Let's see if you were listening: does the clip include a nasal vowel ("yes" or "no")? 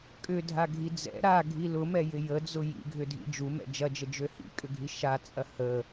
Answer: no